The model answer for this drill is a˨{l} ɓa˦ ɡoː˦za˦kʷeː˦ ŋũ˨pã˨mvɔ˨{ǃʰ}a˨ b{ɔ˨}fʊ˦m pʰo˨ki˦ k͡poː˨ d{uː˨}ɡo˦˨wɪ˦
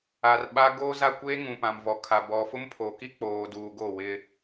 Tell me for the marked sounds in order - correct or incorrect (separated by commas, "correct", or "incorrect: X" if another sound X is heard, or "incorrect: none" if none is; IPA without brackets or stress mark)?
incorrect: r, incorrect: kʰ, correct, correct